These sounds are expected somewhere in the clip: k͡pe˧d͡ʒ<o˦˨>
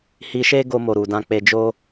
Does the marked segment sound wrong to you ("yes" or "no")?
yes